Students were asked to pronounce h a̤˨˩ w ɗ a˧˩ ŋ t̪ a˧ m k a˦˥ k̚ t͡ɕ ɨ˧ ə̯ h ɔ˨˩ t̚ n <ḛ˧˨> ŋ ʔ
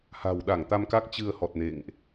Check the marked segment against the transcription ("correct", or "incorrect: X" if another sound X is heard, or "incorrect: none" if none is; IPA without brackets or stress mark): correct